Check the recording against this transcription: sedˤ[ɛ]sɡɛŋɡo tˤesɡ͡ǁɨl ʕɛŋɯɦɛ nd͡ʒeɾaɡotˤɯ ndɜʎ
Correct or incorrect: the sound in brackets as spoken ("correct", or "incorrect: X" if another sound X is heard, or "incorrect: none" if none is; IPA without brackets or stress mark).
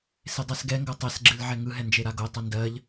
correct